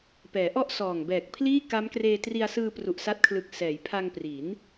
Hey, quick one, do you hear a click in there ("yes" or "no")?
no